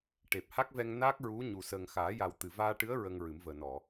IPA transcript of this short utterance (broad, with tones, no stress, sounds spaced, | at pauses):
ʈ e˨˩ p̚ h a˦˥ k̚ v ɛ˧ ŋ n a˦˥ k̚ ɹ u˧˥ ɲ u˨˩ s əː˨˩ ŋ x aː˨˩˦ j a˨˩ w t̪ ɨ˨˩ v aː˧ ʈ ɨ˧˥ ə̯ ɹ ə˧ ŋ ɹ ɨ˨˩˦ m v əː˨˩ n ɔ˨˩˨